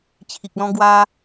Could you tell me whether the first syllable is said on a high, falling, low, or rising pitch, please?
low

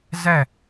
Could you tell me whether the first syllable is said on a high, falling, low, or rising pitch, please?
falling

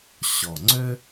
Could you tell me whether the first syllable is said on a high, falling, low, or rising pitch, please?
low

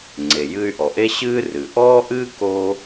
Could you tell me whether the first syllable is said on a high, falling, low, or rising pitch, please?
low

